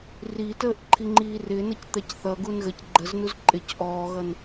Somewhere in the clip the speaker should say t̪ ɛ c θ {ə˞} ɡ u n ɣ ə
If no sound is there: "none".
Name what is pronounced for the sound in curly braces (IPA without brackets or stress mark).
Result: ʌ